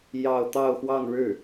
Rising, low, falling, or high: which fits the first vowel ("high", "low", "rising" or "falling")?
falling